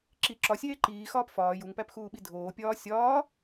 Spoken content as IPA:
ǁ i ǁ ɒ sʲ eː ǃ iː x ɒː p f ɒː j u ŋ p æ p x uː ɓ i dʱ oː pʲ ɒː sʲ ɒː

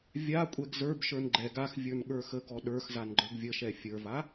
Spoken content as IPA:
vʲ a kʷʼ ɛ ɡ z ə˞ b ʃ ə˞ n ɡ͡ǃ ɛ ɡ a x vʲ ə˞ n ɠ ə˞ x ə ɡ ɔ ɗ ə˞ x z a n ɡ͡ǃ ə˞ ɡ vʲ ə ʃ ɛ fʲ ə˞ v a

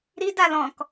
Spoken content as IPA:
ɾ i d a l ɔ̃ k

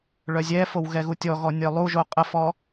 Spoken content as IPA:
ɭ œ zʲ ɛ f o w ɣ ɛ ɣ u tʲ ɔ ɣ ɔ nʲ œ lˠ u ʒ o qʼ ə f ɔ

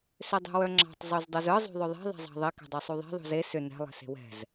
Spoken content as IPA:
s ʏ dˤ ṳ w œ ŋ͡ǁ ɑ̤ tˤ zˤ u z dˤ u z ɯ zˤ ṳ ðˤ ʏ ðˤ e̤ ðˤ ɛ̤ zˤ ɑ̤ ðˤ e k ɛ̤ dˤ œ sˤ u ðˤ e̤ ðˤ ṳ z e s ʏ n ɛ̤ lˠ e̤ s e̤ w ɛ̤ z

